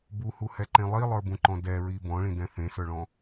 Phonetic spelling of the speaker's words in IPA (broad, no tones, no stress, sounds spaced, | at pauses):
b u h u h ɛ ǃ ẽ lˠ i lˠ ə˞ b ũ ǃ ɔ̃ d ɛ ɹ i b ɔ̃ ɭ ĩ d ɛ̃ θ ẽ s ə˞ ɭ ɔ̃